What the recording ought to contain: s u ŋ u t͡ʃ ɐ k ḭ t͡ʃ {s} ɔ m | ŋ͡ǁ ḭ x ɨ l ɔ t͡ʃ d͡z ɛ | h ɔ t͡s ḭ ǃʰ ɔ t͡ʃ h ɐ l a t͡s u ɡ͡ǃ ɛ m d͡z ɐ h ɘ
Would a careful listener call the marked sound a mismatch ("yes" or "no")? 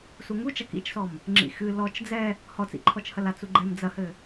no